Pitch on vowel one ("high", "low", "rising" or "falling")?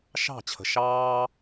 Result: falling